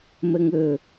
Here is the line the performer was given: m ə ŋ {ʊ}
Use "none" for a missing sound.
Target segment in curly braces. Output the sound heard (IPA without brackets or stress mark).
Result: ɵ